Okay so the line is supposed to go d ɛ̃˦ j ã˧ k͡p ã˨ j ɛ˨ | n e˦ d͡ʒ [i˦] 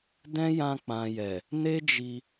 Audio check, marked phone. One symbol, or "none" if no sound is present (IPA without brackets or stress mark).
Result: i˧